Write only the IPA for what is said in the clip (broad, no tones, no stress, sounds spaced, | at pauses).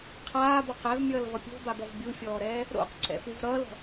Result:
qʰ aː b ɔ q ɛ v mʲ ʌː l v ʌ pʲ o̤ b a b ɔ v bʲ u fʲ ɔː ɾ ɛː | ɾ o̰ q ǀ ɛ̰ f u v ɾ ʌː l ɔ̤